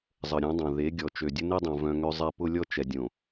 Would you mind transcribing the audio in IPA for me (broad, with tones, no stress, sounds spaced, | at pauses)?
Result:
zˤ ə˨ ɾʲ ũ˨˦ dˤ õ˨ ð e˨˦ ɡʲ ɔ˨ t͡ʃ ø˨ dʲ ə˦ n e˦ dˤ õ˨ v œ̃˦ ŋ ø˦ zˤ ɛ˦ p ʊ˦ lʲ ɔ˦ t͡ʃ ɛ˨ dʲ õ˨